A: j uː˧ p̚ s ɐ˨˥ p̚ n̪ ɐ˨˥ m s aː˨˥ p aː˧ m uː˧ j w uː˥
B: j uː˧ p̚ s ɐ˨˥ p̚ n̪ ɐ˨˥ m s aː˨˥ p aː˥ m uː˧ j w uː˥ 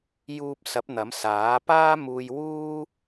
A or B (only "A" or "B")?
B